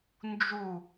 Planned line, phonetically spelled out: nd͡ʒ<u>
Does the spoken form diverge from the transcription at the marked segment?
no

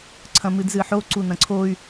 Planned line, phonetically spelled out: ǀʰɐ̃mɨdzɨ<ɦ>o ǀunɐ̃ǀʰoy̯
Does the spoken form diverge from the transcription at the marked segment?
yes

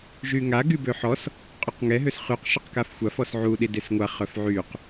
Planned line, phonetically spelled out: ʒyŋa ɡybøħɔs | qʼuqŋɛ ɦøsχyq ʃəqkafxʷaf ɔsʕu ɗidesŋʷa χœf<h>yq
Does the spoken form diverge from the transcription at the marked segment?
yes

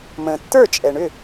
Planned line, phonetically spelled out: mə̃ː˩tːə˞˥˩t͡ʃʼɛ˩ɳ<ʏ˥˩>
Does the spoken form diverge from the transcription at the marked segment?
no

